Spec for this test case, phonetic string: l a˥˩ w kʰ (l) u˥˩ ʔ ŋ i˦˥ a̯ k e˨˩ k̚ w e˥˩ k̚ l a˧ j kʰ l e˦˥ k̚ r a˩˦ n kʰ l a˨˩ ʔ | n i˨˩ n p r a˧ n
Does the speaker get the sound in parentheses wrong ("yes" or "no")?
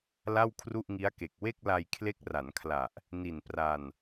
yes